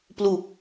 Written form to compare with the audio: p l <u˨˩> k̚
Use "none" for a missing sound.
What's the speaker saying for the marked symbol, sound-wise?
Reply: u˨˩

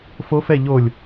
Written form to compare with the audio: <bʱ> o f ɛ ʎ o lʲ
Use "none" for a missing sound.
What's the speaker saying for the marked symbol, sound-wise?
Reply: f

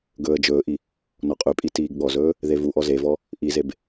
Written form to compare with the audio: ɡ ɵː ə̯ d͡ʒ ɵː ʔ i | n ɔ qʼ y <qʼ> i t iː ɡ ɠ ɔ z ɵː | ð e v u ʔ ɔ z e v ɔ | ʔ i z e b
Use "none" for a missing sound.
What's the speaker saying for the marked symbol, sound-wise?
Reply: pʼ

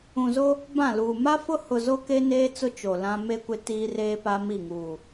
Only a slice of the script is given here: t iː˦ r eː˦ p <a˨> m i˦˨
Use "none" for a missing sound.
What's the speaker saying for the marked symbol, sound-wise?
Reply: a˦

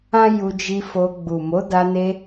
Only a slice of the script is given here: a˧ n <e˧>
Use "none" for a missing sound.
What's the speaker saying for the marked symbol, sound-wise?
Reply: e˧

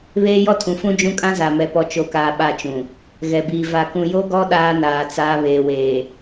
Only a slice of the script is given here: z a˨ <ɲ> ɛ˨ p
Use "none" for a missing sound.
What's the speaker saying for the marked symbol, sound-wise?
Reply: m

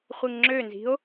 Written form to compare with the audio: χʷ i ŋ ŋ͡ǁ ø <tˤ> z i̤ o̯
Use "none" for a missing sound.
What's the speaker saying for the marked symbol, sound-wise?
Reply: n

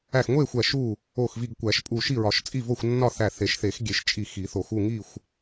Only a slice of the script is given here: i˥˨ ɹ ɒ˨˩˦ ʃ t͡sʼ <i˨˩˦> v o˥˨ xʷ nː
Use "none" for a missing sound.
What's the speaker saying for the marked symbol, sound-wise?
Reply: i˥˨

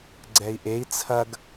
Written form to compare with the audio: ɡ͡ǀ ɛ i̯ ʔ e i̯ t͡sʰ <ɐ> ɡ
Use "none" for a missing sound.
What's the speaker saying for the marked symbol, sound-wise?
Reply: ɐ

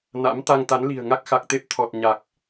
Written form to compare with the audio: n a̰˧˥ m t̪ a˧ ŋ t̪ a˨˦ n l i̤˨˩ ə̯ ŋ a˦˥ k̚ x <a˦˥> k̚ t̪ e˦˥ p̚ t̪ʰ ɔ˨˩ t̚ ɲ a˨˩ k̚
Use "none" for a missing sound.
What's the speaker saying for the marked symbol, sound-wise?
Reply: a˨˩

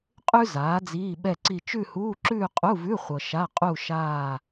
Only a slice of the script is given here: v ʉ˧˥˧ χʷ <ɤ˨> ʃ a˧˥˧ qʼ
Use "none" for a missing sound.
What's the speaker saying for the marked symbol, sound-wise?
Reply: ɤ˨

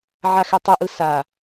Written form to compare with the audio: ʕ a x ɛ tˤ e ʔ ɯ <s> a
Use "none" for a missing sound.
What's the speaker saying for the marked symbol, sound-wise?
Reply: s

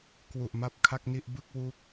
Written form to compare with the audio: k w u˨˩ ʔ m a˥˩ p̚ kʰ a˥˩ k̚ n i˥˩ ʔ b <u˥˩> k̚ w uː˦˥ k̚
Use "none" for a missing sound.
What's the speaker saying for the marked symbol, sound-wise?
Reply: ɯ˥˩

